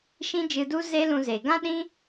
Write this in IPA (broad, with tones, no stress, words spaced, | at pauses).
ʃĩ˦d͡ʒɨ˧du˦ ze˦lũ˧ze˨ ɡã˦ɗĩ˦